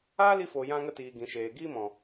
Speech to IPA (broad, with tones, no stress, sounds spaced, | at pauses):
aː˦ l i˧ f o˨ j ã˧ ŋ ə˧ t iː˨ ɡ ĩ˨ ʃ eː˨ ɡ iː˧ m ɔ̃˨